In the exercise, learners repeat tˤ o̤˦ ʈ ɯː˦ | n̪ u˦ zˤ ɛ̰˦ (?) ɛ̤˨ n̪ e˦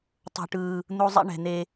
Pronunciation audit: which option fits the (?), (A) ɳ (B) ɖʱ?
A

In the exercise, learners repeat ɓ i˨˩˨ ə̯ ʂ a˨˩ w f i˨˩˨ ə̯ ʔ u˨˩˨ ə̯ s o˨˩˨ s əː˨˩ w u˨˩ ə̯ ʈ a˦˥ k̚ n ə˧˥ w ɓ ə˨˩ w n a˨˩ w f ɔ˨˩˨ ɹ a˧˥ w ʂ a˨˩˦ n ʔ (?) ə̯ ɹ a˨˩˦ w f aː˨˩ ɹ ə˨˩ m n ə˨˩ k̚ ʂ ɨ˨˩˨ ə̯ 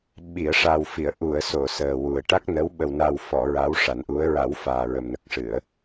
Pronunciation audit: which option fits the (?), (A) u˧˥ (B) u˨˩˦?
A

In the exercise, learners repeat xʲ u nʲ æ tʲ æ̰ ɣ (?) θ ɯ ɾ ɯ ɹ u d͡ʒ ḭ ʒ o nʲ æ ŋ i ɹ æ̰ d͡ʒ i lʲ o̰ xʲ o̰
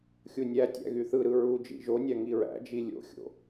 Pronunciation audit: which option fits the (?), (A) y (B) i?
A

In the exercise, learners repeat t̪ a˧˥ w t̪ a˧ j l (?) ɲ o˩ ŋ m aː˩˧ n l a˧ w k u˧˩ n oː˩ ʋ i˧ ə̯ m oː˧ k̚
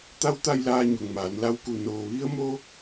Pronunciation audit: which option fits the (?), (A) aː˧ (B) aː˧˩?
A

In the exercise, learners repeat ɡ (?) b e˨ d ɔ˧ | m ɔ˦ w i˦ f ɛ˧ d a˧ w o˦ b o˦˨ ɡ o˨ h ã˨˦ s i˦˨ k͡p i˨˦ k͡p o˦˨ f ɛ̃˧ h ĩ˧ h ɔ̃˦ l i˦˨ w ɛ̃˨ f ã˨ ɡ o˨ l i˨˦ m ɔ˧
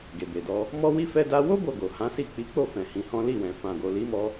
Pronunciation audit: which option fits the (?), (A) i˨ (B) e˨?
B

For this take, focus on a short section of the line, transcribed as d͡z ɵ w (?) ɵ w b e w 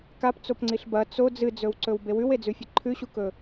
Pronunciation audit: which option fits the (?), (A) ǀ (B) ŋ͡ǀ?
A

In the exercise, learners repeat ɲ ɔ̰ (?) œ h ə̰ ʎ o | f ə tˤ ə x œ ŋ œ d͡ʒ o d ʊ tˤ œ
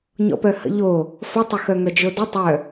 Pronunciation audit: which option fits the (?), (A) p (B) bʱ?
A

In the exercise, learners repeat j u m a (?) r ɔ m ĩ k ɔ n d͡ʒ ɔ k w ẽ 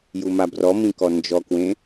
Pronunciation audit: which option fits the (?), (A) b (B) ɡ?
A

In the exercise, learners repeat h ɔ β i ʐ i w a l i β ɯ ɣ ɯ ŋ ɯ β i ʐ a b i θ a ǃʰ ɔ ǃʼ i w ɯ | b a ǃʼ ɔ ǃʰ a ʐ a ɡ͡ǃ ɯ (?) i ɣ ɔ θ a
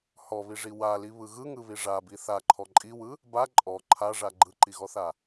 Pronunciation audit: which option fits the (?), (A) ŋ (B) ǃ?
B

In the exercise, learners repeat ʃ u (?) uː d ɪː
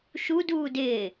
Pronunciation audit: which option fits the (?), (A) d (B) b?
A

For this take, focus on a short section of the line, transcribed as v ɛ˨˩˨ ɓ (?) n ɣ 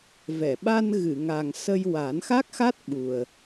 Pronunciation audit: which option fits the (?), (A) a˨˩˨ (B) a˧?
B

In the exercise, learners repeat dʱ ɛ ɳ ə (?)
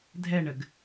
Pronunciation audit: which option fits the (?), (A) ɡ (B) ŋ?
A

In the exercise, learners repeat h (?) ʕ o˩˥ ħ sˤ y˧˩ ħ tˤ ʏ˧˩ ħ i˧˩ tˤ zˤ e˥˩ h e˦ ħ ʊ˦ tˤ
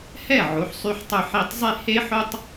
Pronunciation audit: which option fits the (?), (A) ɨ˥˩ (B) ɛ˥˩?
B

